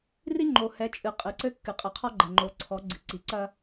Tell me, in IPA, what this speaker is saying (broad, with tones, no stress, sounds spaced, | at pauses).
r i˦ ŋ͡ǃ o˨ h ɛ˨˦ t͡ʃʼ ɨ˨ qʼ ɨ˨ ǀ ɘ˦ kː ɨ˨ qʼ ɨ˨ qʰ ɔ˦ ɡ͡ǃ ɛ˨ ŋ͡ǃ o˨˦ ǀʰ ɔ˨˦ ɡ͡ǀ ɨ˨ ǀ i˨ ǀ ɐ˦